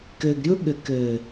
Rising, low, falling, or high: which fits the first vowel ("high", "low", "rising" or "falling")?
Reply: low